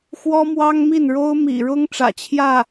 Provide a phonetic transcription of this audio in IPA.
xwɔ˥mwɑ˥ŋmi˥˩nɻo˥ʊ̯ mḭ˨˩ɻʊ˥ŋ ʈ͡ʂä̰˨˩t͡ɕʰjä˥˩

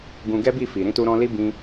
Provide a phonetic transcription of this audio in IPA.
ɡũ˧ɡɛ˦bi˦˨fi˨ ɾĩ˧tu˧ɾɔ̃˧li˦ bĩ˦

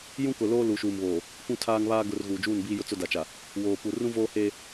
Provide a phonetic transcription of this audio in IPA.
jũ˦kʊ˨loː˦ lu˨ʃuː˨mβoː˨ | kʷũ˦tʰaː˦ŋβaː˦ ɡʊ˨r ɣuː˨d͡ʒuː˦˨nbiː˦jʊ˦ t͡sʊ˦da˨t͡ʃa˨ | woː˨pu˨ rũ˦voː˦heː˦

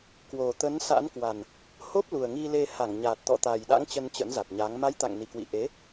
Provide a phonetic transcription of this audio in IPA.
kwo˨˩t̪ə˨˦nsa̰˧˥nkwa˨˩n | ho˦˥p̚lu˨˩ə̯ŋi˧le˧ ha˧˩ŋɲa˨˩t̚t̪ɔ̰˧˨ t̪a˨˩jɗa̰˧˥ŋ t͡ɕə˧nt͡ɕə̰˧˥nza˨˩t̚ɲa˨˦ŋ ma˨˦j t̪a̰˧˨ŋni˨˩kwḭ˧˨ ʔe˨˦

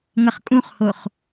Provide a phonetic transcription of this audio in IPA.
ŋʌχkʼũχhoχ

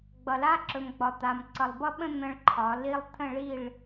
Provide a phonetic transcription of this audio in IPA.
ɡ͡bʌ˨la˦ǁɵ˨m ɡ͡bɒ˨t̪a˨m ǀʌ˨lˠbʌ˦ɓə̃˦ n̪ə̃˦ɭǃʰɒ˨˦ li˦lˠ t̪ʰə̃˦˨ɭi˦˨ɭ

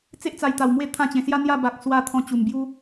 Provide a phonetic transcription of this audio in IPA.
t͡se˦ʔt͡sa˨˩jt̪a˨˩w mwe˥˧t̪ʰã˦t͡ɕẽ˨˩ sja˦n̪ja˥˧ ba˨k̚swa˧ t̪ʰɔ̃˧t͡ɕu˨˩mbju˦

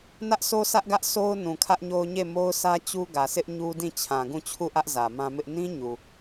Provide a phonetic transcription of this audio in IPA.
nä˦ʔsʰo˦sä˦ʔɡä˦ʔ sʰo˦ʊ̯ nũ˨kʰä˦ʔɲo˦ʊ̯ɲe˦˨ mo˦ʊ̯sä˦ t͡ɕu˦ɡä˨sɪ˦ʔ ɲu˦dĩ˦˨ t͡ɕʰã˨ɡũ˦˨ t͡ɕʰu˦˨ʔä˦ʔ zä˨mã˦mɪ˦ʔ nĩ˦ ɲu˨

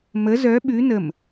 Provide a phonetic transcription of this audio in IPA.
mə zœ ɓʉ nəm

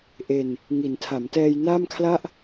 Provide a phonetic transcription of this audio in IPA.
ʔe˨˩n | ŋi˩˦ntʰa˩˦mtɛː˧j naː˥˩mkʰla˥˩ʔ

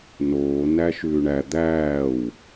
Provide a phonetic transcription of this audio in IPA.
noː næʃʉːɳæ d̪æːw

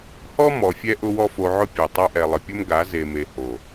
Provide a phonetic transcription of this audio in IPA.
hɔ˦mɔ˨fʲɛ˧ ʔʊ˦wɔ˦fo˧ʕʊ˦ pʲo˨ tˤa˧ʔɛ˨lˠə˨pʲʊ˦m ɡa˨˦ ze˨me˨ ho˨

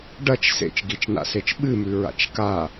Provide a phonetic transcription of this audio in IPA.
ɖɐt͡ʃ sḛt͡ʃɡit͡ʃna̰set͡ʃ ɓɨmʉ ɹa̰t͡ʃka

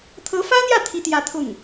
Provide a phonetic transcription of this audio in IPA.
t̪ʰɤ˧˥fä˥n̪jä˥˩ t̪ʰi˥t̪jä˥˧t̪ʰʊ˥˩ŋ

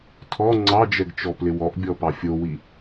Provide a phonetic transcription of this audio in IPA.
tʰɔ ŋ͡ǀɑd͡ʒɛɡt͡ʃɔplɪ wɔʔbʲɔpɑ fʲowi

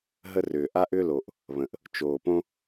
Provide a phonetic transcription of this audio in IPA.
ɦə˥rʏː˩ ʔa˥ʔʏː˥lo˩ʔ | βə̃˩ʔ | t͡ʃoː˩ põ˥

